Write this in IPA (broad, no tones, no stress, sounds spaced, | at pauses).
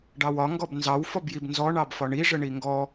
ɖ ɑ w ɒ ŋ ɡ ɔ b n z ɑ w f ɔ b j i b n z ɔ ɳ ɑ b f ɒ ɳ i ʐ ə ɳ i ŋ ɡ ɔ